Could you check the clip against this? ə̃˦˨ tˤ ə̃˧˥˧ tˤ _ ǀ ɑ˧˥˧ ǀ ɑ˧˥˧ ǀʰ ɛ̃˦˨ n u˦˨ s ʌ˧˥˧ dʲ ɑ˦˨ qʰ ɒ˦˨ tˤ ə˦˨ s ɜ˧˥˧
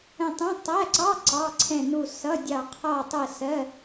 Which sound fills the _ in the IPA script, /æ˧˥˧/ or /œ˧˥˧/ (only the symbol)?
æ˧˥˧